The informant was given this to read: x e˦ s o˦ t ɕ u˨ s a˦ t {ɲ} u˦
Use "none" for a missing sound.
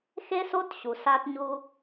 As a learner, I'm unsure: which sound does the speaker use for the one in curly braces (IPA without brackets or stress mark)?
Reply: ɲ